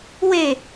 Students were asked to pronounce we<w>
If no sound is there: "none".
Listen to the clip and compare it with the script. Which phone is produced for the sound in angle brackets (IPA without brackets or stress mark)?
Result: none